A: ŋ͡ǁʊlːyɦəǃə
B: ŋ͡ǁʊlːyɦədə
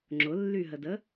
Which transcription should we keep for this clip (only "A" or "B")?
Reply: B